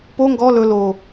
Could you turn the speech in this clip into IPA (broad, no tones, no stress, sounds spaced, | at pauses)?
p o ŋ ɡ ɔ l ɵ l o